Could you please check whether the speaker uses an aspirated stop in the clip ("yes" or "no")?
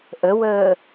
no